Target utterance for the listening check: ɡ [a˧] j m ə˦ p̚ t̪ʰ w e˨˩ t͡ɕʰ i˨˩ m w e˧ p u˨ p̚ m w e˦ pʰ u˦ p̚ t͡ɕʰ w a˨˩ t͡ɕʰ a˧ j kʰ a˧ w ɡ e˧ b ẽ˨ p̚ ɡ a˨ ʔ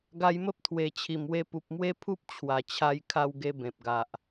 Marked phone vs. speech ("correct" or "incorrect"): correct